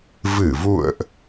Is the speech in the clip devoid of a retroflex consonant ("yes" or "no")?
yes